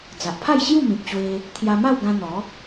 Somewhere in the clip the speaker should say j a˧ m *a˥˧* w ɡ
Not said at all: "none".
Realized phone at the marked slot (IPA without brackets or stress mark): a˥˧